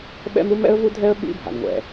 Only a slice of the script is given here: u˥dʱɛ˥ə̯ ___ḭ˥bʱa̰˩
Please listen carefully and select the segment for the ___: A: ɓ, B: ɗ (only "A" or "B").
A